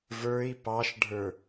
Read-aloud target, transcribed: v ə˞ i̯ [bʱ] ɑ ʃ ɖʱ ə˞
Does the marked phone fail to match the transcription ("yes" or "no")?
yes